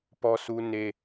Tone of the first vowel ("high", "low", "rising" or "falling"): high